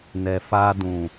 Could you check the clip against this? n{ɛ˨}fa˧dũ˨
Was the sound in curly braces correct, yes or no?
yes